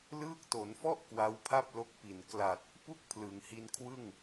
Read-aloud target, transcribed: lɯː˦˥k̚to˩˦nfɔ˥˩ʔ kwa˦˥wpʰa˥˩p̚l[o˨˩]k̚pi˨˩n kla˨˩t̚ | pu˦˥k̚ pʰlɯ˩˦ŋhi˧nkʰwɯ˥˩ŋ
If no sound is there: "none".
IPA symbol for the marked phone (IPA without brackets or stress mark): o˦˥